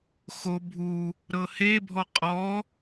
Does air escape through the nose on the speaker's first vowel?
no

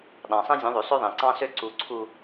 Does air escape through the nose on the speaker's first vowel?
yes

